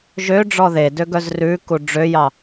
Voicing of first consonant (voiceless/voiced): voiced